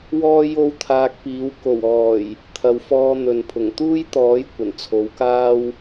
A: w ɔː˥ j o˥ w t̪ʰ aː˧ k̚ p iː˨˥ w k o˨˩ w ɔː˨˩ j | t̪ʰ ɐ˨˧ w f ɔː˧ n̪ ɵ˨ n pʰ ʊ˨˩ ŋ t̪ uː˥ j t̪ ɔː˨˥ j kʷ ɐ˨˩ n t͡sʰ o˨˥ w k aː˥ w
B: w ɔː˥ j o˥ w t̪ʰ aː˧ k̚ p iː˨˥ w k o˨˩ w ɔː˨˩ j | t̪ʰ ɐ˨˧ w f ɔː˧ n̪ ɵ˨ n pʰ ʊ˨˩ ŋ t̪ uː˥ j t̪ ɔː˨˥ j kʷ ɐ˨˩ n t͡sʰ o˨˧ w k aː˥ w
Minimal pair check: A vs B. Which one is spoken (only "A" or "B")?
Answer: B